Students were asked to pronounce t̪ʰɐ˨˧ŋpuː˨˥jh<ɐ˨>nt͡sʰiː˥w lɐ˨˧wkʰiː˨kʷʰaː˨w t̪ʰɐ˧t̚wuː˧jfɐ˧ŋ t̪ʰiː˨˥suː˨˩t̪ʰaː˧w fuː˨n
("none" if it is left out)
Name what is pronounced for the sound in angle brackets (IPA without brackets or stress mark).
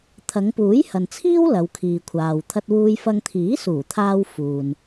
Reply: ɐ˨